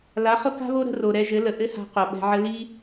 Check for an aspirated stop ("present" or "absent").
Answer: absent